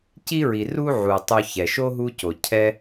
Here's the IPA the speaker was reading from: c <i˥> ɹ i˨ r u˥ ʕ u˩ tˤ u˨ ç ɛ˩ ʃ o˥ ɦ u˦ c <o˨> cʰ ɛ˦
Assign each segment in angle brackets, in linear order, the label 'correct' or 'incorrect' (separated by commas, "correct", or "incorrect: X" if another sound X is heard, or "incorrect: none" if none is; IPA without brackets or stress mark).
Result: correct, incorrect: o˩